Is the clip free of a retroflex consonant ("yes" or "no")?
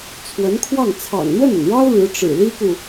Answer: no